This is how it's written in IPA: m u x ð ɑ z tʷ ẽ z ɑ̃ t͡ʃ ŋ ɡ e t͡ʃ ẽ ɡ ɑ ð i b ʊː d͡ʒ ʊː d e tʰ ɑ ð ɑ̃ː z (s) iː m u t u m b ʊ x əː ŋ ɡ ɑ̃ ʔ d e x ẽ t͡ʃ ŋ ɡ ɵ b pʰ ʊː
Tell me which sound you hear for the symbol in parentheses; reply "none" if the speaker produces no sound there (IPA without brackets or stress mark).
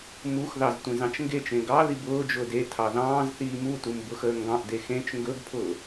θ